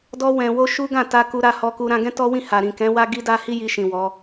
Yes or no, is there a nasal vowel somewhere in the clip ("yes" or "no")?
yes